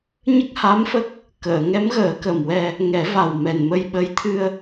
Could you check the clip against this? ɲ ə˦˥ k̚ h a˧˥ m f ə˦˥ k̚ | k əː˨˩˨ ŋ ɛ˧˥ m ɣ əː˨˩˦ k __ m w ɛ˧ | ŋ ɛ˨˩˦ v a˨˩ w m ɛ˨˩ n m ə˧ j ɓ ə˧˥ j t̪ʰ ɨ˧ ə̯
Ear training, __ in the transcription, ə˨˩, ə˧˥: ə˨˩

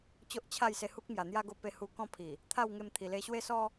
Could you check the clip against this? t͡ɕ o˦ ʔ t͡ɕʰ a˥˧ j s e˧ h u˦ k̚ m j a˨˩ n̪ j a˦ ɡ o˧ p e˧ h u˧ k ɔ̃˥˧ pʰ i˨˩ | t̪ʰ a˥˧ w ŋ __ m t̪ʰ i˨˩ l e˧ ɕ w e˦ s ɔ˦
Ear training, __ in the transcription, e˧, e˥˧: e˧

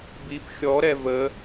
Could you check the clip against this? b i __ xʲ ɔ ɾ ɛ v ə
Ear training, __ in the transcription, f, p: p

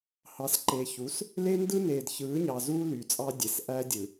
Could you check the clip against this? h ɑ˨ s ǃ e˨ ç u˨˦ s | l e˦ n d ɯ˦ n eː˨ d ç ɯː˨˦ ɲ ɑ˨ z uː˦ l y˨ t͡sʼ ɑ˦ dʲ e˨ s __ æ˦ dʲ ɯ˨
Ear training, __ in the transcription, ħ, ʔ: ʔ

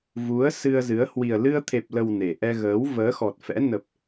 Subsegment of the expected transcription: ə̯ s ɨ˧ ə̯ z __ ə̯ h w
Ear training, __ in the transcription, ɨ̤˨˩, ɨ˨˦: ɨ˨˦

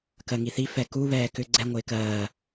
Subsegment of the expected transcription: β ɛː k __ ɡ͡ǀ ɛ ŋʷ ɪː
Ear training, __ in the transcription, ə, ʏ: ʏ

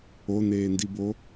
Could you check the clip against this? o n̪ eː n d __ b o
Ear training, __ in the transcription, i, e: i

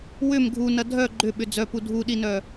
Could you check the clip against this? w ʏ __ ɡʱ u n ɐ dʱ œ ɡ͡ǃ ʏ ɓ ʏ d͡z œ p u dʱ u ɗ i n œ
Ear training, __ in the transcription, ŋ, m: m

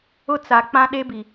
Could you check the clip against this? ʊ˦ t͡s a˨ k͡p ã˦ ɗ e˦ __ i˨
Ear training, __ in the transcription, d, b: b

